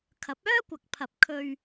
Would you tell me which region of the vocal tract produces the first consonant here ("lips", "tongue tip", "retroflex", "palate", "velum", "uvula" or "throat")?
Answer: velum